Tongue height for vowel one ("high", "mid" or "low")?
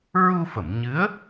high